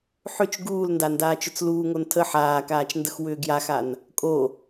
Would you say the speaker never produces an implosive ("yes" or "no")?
yes